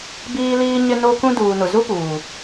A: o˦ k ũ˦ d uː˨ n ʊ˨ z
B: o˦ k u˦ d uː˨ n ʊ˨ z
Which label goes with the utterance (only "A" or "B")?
A